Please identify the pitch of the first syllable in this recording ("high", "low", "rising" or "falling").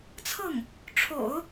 falling